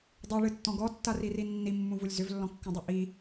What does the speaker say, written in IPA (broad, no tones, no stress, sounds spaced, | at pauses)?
dˤ o ɭ ɨ tː ɔ̃ ɡ ɔ tː a r i r i nː i mː ũ v u lʲ z ʏ v lː ɔ̃ kː ũ dˤ u ʔ i